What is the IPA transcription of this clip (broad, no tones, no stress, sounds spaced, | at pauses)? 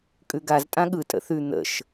kʼ ʉ ɡ a z tʼ ã ɠ ɯ tʼ ə̰ θ ʉ n̪ ə̰ ʃ